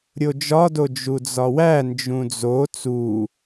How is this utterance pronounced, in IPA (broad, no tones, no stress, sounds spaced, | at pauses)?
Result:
ɾʲ o d͡ʒ ɒ d o d͡ʒ u d͡z ɒ w æ n d͡ʒ ũ d͡z o t͡s u